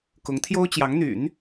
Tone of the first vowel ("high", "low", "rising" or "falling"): rising